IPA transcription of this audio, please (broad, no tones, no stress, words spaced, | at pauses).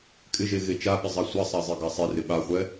kʼɪʒe ɣet͡ʃaɓɪ zˤasʷasˤa zˤeɡasˤerɪ ɓaχʷɛ